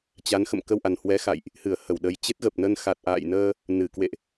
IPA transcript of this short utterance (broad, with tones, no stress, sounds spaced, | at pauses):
t͡ɕ a˨˦ n x ə̰˧˨ m k ə˧ w ʔ a˨˩ n h w ɛ˨˦ x a̰˧˨ j ʔ | h ɨ˧˩ ə̯ h ə˧˩ w ɗ ə˨˩ j t͡ɕ e˦˥ t̚ ɣ ə˨˩ p̚ n ə˧ n x a˨˩ t̚ ʔ a̰ː˧˨ j n əː˧ | n ɨ˧˩ k w ḛ˧˨ ʔ